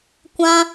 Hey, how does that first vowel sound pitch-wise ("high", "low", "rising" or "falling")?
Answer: high